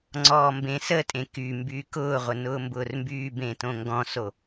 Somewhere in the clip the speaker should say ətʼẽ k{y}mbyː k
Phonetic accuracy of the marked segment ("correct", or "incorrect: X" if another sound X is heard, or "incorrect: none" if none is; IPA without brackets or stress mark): correct